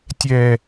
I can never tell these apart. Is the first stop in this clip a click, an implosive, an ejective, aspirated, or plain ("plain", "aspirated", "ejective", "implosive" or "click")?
plain